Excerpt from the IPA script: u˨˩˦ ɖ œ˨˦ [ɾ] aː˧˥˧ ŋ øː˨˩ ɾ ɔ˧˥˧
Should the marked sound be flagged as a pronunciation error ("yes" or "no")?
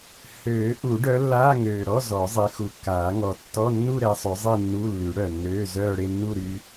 yes